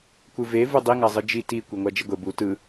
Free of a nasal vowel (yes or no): yes